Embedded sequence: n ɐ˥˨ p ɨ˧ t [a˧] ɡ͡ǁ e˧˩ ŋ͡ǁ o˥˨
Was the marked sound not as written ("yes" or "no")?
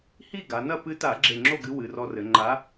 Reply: yes